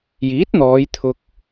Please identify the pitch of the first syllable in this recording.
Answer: rising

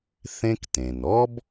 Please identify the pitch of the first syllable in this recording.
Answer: high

